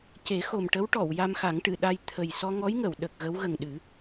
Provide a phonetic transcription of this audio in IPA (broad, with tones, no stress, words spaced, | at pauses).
ce˨˩˦xo˨˩mʈə˧˥w ʈɔ˨˩˨w ja˧mxa˨˩˦ŋʈɨ˨˩˨ɗa˧j t̪ʰə˨˩j sɔ˧ŋɔ˧˥jŋə˨˩˨w ɗə˨˩k̚ɣə˧˥w ɣə˨˩ŋɗɨ˨˩˦